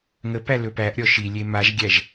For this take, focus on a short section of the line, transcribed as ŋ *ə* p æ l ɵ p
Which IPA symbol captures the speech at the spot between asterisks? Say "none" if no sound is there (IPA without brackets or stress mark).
ə